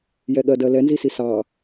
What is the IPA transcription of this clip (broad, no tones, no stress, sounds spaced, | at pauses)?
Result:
j ɛ ɠ ɜ d ɜ l ɛ n z i s i s ɑ